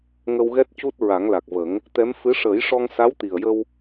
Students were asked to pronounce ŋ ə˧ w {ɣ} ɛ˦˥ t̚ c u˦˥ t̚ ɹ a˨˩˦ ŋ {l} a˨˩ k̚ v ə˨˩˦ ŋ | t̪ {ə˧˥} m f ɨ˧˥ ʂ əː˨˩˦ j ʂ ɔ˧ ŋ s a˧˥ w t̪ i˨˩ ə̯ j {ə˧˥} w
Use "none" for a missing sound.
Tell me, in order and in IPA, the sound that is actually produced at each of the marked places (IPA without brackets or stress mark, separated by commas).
ɣ, l, ɛ˧˥, ə˧